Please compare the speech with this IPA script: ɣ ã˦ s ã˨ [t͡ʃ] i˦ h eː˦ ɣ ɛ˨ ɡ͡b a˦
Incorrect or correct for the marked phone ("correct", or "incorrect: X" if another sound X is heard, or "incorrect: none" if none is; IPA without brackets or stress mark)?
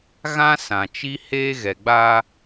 correct